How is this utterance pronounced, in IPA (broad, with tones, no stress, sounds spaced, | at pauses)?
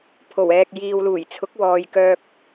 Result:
pʰ o˨˩ w ɛː˨ k̚ j iː˨ w l uː˨˩ j t͡sʰ ʊ˨˥ k̚ w ɔː˨ j k œː˧ k̚